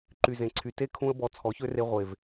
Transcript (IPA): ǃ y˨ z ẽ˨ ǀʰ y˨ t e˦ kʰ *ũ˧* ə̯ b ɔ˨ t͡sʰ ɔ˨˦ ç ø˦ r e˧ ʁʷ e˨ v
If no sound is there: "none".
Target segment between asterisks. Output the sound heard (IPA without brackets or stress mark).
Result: ũ˧